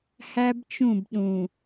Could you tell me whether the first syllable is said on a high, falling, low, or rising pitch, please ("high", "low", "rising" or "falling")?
high